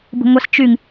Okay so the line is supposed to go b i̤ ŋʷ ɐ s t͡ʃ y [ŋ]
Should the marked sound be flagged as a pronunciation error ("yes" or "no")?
no